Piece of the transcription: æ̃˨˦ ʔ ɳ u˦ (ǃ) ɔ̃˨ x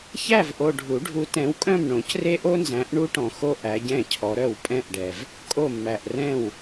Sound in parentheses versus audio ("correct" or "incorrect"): incorrect